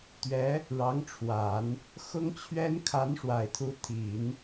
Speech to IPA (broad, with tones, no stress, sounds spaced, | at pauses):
t̪ ɥ ɛ˧˥ | ɻ ɑ˧˥ ŋ ʈ͡ʂʰ w a˨˩˦ n | x ʊ˥ ŋ t͡ɕʰ ɥ ɛ˥ n kʰ a˧˥ n ʂ w a˨˩ ɪ̯ t̪ʰ u˧˥ t̪ʰ i˨˩˦ n